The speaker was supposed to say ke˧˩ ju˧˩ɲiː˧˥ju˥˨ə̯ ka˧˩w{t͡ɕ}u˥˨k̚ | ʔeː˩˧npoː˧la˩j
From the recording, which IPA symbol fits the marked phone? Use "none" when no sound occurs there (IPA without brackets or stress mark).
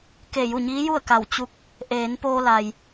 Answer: t͡ɕ